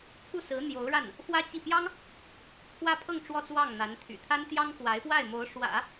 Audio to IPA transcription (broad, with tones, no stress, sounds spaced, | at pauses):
kʰ u˥˩ s ɹ̩˧˥ n̪ j o˧˥ ʊ̯ ɻ a˥˩ n | f w ä˥ t͡ɕ i˥˩ p j ɑ˥ ŋ | pʰ w ä˥ pʰ ɤ˥˧ ŋ ʈ͡ʂ w ɔ˥˧ t͡s w ɑ˥˩ ŋ n̪ a˧˥ n t̪ʰ y̰˨˩ t̪ʰ a˥ n t̪ j ɑ˥ ŋ k w a˧˥ ɪ̯ p w a˥˩ ɪ̯ m o˧˥ ʊ̯ ʂ w ä̰˨˩˦